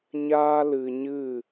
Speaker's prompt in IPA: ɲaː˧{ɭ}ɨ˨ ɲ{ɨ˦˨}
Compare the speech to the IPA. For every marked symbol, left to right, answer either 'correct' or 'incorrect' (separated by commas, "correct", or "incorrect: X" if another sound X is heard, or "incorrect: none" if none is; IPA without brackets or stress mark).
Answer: incorrect: l, correct